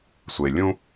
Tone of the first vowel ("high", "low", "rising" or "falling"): low